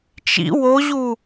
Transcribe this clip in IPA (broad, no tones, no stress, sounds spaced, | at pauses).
t͡ʃ ḭ w o ʑ u